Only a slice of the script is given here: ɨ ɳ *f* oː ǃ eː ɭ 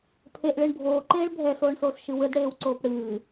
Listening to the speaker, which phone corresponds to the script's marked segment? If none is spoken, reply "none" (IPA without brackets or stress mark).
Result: bʱ